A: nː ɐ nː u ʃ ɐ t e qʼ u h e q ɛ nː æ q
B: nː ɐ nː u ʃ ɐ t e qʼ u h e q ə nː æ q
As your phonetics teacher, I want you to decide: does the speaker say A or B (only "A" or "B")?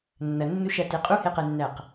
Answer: A